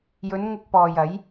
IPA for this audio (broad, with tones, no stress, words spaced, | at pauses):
jɵ˨˧n ŋʊ˧k̚pɔː˨j ɐ˨˥j